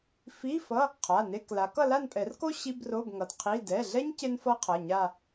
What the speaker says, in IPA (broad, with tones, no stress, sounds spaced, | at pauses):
f i˧˥˧ f ʌ˧˥˧ | qʰ a˩˧˩ n e˧˥˧ k l a˨˦ k ʌ˥˧ l a˥˧ n pʼ ɛ˨˩˦ r k o˥ ɕ i˧˥˧ b r o˧˥˧ b ŋ ʌ˩˧˩ d qʰ i˧˥˧ d ɛ˩˧˩ ɮ ɛ˥ ɲ c e˥ n f ʌ˥ qʰ ʌ˩˧˩ ɲ a˥˧